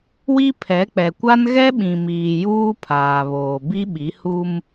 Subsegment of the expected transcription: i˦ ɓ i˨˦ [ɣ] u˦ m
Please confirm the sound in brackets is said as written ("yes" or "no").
no